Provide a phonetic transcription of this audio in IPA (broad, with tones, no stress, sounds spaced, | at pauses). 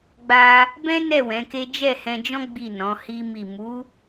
ɡ͡b a˧ | b ɛ̃˦ n ɛ˦˨ w ɛ̃˨˦ k e˦ d͡ʒ ɛ˦˨ h ɛ̃˧ d͡ʒ ɔ̃˦ ɡ͡b i˦˨ n ɔ̃˨˦ h i˦ m i˦˨ m u˨˦